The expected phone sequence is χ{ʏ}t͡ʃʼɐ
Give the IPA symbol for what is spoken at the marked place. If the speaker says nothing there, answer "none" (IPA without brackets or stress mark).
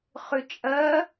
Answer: ʏ